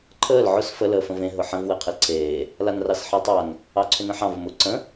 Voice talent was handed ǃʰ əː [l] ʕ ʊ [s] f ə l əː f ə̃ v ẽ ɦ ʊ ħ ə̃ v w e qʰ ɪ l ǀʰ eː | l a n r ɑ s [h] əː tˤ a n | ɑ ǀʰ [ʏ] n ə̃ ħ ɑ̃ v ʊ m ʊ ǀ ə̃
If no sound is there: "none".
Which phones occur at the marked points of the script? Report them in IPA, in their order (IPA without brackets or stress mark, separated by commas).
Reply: l, s, ħ, ʏ